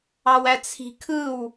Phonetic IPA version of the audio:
ɑ w æ t͡sʰ i̤ kʰ ɯ w

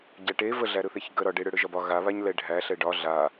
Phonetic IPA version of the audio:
ɟ æ ʈ e v ə ɮ æ ɾ ɯ θ e ç ɡ ə ɾ ɒ ɖ e ɽ ɯ ɽ ɯ ʒ ɒ b ɒ ɣ a β a ɲ l ɛ ɖʱ æ ɬ ɛ ɖ ɒ ɮ a

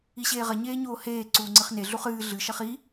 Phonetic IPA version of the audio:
i ɕ eː ʁ ɐ ɲ eː ɲ oː h eː ǀ uː ŋ͡ǀ ɨ χ n e ɮ u χ ɨː ɮ ɨ ʃ ɐ χ i

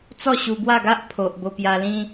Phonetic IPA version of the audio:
t͡s ɔ˥˧ ɕ u˧ b w a˥˧ ɡ a˦ ʔ pʰ o˨ ʔ b o˧ p j a˧ l ĩ˦

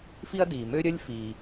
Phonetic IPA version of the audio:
f i˥ ɐ̯ d iː˩ m ø˥ ɾʲ œ˥ lʲ f iː˩

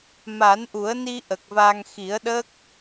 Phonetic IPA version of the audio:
m a˨˩˦ n ʔ u˨˩˦ ə̯ n i˧ ʔ ə˨˩ k̚ v a˧ ŋ x i˨˩˦ ə̯ ɗ ə˦˥ k̚

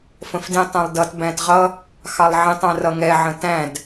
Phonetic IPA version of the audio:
f ə̃ f d ĩ tˤ ɛ̃ lˠ d ʌ t b æ̃ t ʁ ʌ | x ɑ lˠ ʕ ĩ tˤ æ̃ r ʌ ŋ ɛ ʕ ə̃ t æ̃ d

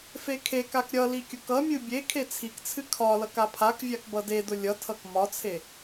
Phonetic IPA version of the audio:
f e kʰ e k a k ɾʲ ʌ l i kʲ ʊ k ʌ mʲ ɨ bʲ e kʰ e t͡sʰ i k t͡sʰ ɨ kʰ ɒ l ʌ k a pʰ a k vʲ a k b ʌ d e d ʊ lʲ ʌ tʰ ʌ k m ɒ t͡sʰ e

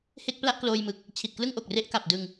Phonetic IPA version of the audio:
h e˥˩ k̚ p l a˥˩ ʔ k l oː˧ j m ɯ˨˩ k̚ | t͡ɕʰ i˨˩ t̚ k l ɯ˥˩ ŋ ʔ o˨˩ k̚ r e˦˥ ʔ k a˨˩ p̚ d ɯ˧ ŋ

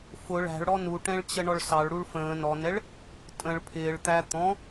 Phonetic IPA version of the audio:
f ʊ ɭ æ̤ ɭ ɽ ɔ n u ʈ ɛ̃ ɭ t͡ɕ ə ɳ ɔ ɭ s ɑ ɭ ɽ u ɭ f ə̃ː n ɔ n ɛ ɭ | tʼ ə̃ ɭ pʰ ɪː ɭ t̪ æ t̪ ɔ̃

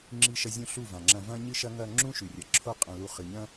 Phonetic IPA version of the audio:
ŋ͡ǁ i˧ ʃ ɐ˧ zʲ ũ˧ ɬ u˦˨ v ã˨ ŋ͡ǁ ɐ̃˧ v ɐ̃˦ ɲ ɨ˦ ʃ ɐ˦ ŋ ɐ˧ ŋ͡ǁ ũ˦ ʃ ʉ˨ rʲ ɐ˨ ǁʰ o˦ qʼ ɐ̃˧ l u˧ χ ɨ˨ ɲ ɐ̃˦

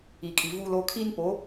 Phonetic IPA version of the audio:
i˨ kʼ i˨ v u˦ l o˦ kʰ i˦ n p o˨˦

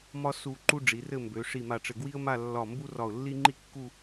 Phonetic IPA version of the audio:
m ɒ˥ s u˧ ǃ u˥ ɖ͡ʐ i˩˧ r ɘ˥˧ m b ø˩˧ ʂ i˧˩ m a˧˩ ʈ͡ʂ ɘ˧˩ ɡ w i˥ ə̯ m a˥˧ lː ɒ˧˩ m b u˥ r ɒ˧˩ ʊ̯ lː i˥ ŋ͡ǃ i˥ kː u˥˧

